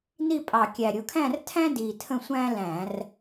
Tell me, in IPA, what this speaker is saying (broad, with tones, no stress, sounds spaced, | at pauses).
n i˥˧ pʼ ɑ˨˩ kʲ æ˨˩ ɾʲ ʊ˧ kʰ æ̃˥˧ r tʰ æ̃˥ d iː˨˩ tʰ ə̃˥˧ sʷ æ̃ː˥ l æ̃˧˩˧ r